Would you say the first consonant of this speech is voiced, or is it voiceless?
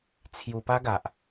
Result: voiceless